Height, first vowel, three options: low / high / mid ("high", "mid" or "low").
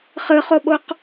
high